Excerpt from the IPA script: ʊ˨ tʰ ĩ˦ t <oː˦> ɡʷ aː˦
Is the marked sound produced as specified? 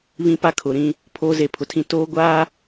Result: yes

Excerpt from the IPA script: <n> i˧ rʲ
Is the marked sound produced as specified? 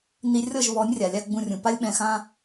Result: yes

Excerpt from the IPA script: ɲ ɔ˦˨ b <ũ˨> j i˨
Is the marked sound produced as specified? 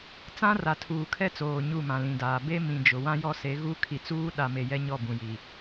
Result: yes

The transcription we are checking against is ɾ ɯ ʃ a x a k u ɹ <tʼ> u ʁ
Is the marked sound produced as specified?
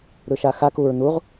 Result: no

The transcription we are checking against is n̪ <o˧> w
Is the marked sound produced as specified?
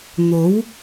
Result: no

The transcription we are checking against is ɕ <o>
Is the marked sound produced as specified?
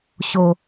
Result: yes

